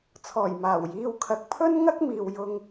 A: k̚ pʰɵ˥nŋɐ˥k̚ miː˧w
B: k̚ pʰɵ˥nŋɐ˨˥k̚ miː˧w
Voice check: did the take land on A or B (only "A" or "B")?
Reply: A